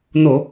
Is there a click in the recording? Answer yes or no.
no